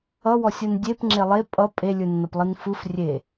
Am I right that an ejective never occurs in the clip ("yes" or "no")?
no